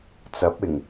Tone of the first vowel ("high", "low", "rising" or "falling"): rising